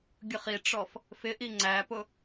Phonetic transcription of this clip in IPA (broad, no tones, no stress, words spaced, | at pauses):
ɡʲʊχiʈ͡ʂɔf | fɪʔi ŋ͡ǀæpʊ